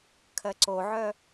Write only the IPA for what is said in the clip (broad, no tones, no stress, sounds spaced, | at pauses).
kʰ ɜ ǀ o ʕ œ